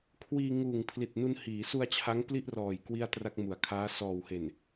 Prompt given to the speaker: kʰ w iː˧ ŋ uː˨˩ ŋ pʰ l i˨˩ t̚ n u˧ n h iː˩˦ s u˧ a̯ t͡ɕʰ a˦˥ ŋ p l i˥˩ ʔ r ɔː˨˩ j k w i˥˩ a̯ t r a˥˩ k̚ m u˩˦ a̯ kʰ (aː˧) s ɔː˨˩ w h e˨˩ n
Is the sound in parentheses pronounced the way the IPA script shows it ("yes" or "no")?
no